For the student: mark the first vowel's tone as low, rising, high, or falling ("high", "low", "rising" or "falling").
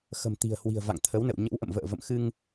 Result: low